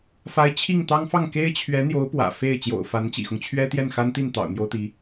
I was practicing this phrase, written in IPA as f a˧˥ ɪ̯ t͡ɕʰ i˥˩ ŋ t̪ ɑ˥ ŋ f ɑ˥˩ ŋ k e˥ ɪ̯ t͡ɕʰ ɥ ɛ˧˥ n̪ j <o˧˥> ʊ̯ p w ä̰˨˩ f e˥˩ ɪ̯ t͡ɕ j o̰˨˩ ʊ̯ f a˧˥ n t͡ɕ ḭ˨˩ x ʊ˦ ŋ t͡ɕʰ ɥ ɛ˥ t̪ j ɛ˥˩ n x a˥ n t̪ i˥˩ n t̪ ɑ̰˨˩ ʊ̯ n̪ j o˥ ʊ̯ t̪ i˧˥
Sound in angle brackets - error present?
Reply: no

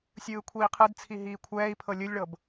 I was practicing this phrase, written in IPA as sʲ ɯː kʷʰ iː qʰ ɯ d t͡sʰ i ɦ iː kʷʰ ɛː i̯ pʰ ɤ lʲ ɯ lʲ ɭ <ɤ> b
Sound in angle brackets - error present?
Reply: no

